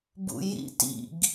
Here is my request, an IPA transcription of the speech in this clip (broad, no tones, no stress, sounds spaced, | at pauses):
b ṵ j ḭ t ḭ ɡ